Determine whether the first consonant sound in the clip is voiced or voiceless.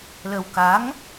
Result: voiced